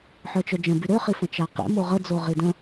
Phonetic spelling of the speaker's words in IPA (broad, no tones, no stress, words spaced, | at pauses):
ħœt͡ʃœd͡ʒə̃by ɾøχifə̃ t͡ʃaqḛ moʁəd͡zo ʁidə̃